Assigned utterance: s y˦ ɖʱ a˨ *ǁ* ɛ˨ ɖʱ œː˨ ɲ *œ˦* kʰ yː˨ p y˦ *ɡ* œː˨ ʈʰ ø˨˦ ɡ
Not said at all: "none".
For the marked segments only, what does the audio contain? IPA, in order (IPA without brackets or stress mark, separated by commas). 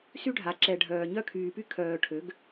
ǁ, œ˦, kʰ